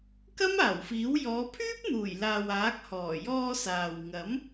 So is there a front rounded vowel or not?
yes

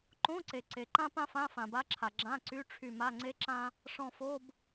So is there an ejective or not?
no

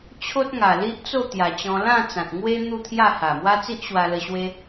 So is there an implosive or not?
no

